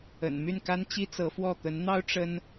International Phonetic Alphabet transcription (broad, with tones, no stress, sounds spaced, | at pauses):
ə̰˨˩ n m y˥˩ n k a˥ n t͡ɕ i˥ t͡s ɤ˧˥ f w ɔ˥˩ t̪ ə˧˥ n n̪ ɑ˥ ʊ̯ ʈ͡ʂ ə˥ n